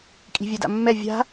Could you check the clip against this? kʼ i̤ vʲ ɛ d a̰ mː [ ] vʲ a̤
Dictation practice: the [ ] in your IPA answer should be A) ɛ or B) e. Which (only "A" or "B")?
A